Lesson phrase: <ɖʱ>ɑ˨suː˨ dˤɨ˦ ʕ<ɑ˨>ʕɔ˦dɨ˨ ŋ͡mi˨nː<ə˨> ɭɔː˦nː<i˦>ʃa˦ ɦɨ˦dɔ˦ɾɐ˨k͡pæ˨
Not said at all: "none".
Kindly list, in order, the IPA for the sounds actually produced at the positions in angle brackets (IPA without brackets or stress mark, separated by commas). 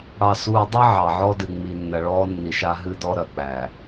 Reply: ɽ, ɑ˨, ɐ˨, i˨